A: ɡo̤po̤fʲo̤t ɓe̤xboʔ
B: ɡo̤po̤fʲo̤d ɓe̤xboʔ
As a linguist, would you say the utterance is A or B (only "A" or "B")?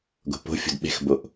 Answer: B